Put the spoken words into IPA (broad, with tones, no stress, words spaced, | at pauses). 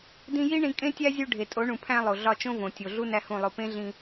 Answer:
dĩ˧ ji˦ ɳĩ˧kʼẽ˦tʲæ˦zʲu˧ ɖʱe˨tʼo˨˦ɳũ˨ pʰæ̃˧ lˠo˨ɮɒ˧t͡ʃõ˦võ˨ tʲo˨ɮu˦ næ˦hũ˦˨lˠo˧ pẽ˦ɮĩ˧